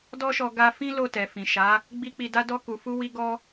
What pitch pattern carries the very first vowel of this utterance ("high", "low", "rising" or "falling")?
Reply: high